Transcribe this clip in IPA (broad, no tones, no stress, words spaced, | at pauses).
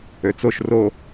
øt͡soʃ ro